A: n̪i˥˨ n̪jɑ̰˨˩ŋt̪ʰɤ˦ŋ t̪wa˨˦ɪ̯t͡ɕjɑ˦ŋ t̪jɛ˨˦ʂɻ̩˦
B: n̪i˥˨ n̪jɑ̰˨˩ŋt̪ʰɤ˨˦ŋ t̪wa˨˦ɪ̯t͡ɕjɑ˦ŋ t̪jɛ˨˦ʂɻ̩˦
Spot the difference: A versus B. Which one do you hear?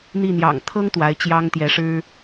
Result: A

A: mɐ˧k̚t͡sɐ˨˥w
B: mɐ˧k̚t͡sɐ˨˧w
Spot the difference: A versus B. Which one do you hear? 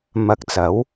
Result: A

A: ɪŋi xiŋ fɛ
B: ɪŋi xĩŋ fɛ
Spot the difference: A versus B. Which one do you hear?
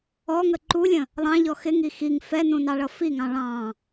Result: A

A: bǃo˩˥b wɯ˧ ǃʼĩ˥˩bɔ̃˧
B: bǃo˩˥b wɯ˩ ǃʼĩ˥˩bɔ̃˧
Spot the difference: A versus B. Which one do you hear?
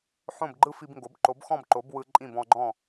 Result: A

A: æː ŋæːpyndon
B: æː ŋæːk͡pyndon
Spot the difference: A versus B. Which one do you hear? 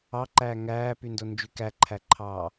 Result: A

